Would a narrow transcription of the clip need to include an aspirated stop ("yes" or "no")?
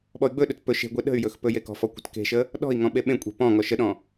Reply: no